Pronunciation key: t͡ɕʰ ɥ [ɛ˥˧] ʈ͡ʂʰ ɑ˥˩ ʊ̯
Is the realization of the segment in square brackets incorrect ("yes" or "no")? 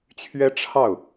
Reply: yes